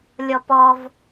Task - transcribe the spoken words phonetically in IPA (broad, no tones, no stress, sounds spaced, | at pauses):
lʲ ɔ p ɔ v